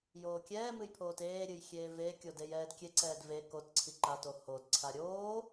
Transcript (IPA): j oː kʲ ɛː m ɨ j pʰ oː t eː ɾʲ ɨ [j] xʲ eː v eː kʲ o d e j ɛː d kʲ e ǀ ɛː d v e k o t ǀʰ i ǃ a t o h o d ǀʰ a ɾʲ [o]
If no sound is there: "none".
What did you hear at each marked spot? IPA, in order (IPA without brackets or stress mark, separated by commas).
j, oː